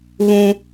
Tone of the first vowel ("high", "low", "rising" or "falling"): high